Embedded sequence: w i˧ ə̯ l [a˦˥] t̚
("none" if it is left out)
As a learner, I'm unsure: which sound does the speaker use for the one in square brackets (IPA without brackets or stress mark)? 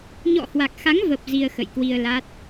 a˦˥